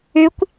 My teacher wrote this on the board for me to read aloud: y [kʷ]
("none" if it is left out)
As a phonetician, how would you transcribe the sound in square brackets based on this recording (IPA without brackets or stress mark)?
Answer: kʷ